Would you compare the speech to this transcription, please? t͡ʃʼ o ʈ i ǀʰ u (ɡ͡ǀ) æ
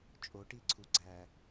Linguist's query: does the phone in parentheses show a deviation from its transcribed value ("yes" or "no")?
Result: no